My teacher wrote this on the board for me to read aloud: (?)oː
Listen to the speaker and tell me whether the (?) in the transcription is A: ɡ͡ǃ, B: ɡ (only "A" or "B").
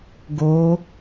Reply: B